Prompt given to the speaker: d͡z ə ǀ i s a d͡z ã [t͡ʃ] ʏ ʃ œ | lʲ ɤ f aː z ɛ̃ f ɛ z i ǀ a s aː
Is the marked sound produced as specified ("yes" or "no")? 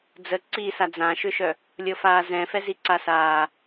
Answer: no